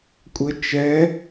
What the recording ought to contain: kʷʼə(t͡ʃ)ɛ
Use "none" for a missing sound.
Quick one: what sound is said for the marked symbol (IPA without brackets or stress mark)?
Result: t͡ʃ